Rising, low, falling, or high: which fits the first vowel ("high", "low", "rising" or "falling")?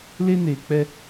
high